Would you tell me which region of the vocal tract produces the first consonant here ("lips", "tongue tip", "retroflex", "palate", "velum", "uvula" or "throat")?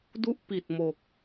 tongue tip